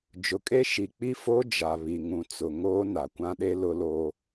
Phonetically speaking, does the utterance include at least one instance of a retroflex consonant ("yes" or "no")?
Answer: no